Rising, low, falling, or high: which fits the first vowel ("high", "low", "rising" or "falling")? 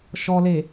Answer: low